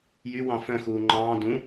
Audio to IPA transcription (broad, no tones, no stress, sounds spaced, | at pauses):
j y w ɑ̃ f œ̃ x uː ŋ͡ǃ ɑ̃ː d ũ